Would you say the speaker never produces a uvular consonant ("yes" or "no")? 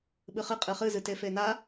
no